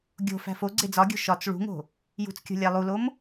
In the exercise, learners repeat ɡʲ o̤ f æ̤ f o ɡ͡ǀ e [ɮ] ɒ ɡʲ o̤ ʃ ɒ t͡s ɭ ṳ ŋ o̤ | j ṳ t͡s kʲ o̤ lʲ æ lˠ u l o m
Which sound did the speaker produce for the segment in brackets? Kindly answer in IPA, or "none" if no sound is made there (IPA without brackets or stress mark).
d͡z